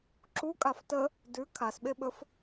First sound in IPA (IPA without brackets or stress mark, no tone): ǁ